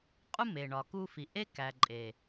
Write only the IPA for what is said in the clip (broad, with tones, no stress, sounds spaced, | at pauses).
qʼ u˦ m e˨ ɳ ɒ˨ k u˧ f i˨ ʔ e˦ k æ˨ ǃʼ e˨